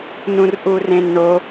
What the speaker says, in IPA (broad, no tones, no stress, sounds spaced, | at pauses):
n ũ r ʔ u r ẽ n ɳ o